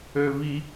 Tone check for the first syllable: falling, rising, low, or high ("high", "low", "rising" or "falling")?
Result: high